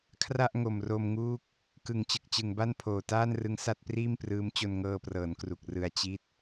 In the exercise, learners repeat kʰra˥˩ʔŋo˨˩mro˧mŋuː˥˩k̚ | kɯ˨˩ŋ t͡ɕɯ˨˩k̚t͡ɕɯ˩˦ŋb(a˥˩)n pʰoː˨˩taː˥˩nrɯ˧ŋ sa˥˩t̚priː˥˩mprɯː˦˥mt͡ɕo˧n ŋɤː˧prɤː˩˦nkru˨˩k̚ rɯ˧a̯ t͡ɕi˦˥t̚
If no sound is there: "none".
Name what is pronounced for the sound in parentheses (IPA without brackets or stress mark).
a˥˩